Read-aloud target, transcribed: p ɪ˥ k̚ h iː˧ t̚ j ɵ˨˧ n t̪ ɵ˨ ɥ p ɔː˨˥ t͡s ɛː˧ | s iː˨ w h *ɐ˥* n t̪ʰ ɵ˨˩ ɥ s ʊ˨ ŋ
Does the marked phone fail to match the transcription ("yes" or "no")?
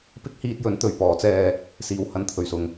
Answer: yes